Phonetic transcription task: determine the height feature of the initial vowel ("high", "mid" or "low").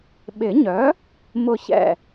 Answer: high